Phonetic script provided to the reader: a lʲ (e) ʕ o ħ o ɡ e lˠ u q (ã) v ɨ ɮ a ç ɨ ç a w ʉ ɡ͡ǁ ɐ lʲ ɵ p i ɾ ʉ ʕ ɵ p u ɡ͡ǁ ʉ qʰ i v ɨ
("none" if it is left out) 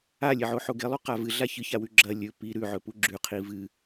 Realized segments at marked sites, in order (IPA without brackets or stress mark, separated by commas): e, a